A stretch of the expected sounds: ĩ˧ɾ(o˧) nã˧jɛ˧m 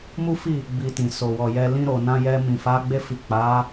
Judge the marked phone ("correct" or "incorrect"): incorrect